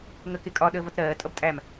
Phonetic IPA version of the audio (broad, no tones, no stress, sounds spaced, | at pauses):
ŋ ə k ɪ kʼ ɒ ɗ əː v ʌ t ɾ ɜː tʼ ʌ b tʼ æ m